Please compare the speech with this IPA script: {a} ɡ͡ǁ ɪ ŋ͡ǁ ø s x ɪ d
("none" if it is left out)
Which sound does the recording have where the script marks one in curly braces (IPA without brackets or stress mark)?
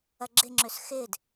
ɐ